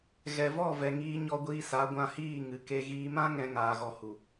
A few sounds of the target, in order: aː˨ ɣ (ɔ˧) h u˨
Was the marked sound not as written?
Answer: yes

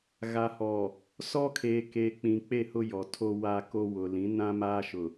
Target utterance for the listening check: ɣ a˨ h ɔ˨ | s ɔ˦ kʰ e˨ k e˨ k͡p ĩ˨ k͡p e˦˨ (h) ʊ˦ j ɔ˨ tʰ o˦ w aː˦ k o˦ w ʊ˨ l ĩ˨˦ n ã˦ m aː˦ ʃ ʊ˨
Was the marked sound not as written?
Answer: no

